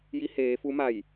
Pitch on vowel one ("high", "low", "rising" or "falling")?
rising